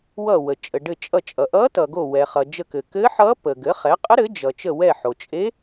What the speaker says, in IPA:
w ʌ˧˩ w ə˩ t͡ʃʼ ə˩ ɖ ɘ˧˩ t͡ʃʼ ʌ˧˩ t͡ʃʼ ʌ˩ ʔ ʌ˧˥ t ʌ˩ ɡ o˧˩ w ɛ˩ χ ʌ˩ d͡ʒ ə˧˩ k ɘ˩ k ɘ˧˥ ħ ʌ˧˥ p ə˩ ɡ ɘ˩˥ χ ɛ˩˥ qʼ ə˧˥ ɾ ɘ˩˥ d͡ʒ ʌ˩ t͡ʃ ə˧˩ w ɛ˧˩ ħ o˩ t͡ʃʼ e˧˥

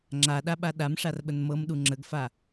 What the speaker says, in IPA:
ŋ͡ǁ a ɗ a ɓ a ɗ a m ʂ a r ɓ ə n m ɤ m ɗ u ŋ͡ǁ ə ɡ f a

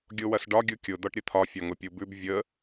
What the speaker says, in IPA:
ɡʲ o w ɐ s ɖ ɒ ɡʲ u kʲ ʊ d̪ ɔ ʈ ɾʲ ə t̪ʰ ɒ fʲ ɒ ŋ ʊ pʲ u b ʉ b vʲ ə

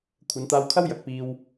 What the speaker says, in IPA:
kʷʰ ɐ˨˧ n t̪ aː˧ w kʰ ɐ˥ w j ɐ˨ k̚ p iː˧ w

